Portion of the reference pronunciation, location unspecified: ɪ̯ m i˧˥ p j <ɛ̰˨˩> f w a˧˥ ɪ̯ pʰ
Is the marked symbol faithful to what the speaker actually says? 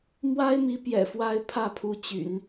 yes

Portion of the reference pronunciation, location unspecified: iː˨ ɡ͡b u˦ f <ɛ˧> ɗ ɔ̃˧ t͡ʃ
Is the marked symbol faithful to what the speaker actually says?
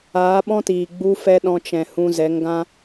no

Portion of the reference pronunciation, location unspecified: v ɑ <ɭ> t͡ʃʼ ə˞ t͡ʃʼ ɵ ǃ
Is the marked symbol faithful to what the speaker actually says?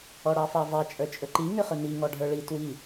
no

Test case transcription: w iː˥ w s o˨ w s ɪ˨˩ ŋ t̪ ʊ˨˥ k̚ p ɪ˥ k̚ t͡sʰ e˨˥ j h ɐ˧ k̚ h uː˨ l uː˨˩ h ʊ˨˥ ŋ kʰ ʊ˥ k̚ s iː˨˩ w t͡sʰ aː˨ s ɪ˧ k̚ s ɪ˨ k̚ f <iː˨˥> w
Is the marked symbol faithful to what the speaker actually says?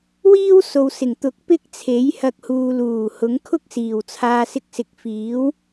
yes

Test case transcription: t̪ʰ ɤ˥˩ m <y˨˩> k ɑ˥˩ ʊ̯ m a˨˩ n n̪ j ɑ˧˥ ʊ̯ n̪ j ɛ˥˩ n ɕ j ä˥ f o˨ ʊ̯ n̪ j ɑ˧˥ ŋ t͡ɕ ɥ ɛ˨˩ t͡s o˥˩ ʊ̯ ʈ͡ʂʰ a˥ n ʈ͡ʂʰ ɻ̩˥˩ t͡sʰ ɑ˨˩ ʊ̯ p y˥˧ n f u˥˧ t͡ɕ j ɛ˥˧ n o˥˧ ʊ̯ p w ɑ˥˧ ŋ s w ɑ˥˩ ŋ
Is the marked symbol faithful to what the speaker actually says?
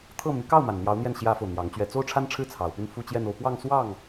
no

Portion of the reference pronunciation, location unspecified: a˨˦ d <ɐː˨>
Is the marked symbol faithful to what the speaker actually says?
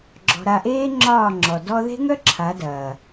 yes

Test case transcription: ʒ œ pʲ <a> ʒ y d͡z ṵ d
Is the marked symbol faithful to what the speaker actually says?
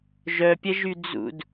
no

